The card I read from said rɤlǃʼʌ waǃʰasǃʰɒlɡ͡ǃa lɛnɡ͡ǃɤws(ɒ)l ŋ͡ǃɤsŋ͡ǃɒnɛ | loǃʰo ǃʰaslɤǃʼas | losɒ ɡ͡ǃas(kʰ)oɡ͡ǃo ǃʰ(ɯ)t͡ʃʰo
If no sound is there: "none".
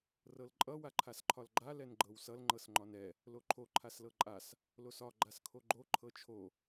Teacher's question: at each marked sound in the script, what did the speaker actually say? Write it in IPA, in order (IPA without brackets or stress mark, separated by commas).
ʌ, kʰ, ɤ